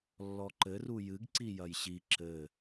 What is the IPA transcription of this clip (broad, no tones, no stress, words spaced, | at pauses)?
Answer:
lːɔǃɘru jɨɡ ǀijɐjɕi ǁɘ